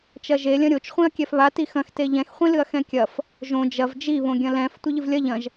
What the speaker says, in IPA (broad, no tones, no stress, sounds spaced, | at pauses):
t͡ʃ ɐ ʒ e lʲ ɐ̃ ɾʲ o t͡ʃ χʷ ĩ ɐ̯ kʲ ɛ f β a t i x ɐ̃ x t e ʎ ɛ̃ x χʷ ĩ l ɨ ɐ̯ x ɛ̃ kʲ ɐ f | ʒ õ d͡ʒ ɐ v d͡ʒ i β õ ɡʲ ɐ̃ l ɛ̃ f tʷ ɘ ʎ ɨ v lʲ ɐ ʎ ɐ̃ ʒ